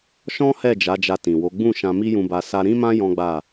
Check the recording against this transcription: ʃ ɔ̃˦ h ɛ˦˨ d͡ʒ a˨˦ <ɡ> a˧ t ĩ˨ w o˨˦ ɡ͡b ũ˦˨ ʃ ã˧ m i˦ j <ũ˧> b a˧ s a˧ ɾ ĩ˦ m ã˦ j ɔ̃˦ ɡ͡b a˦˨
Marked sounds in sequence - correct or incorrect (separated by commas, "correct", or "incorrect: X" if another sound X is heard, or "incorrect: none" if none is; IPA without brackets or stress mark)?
incorrect: d͡ʒ, correct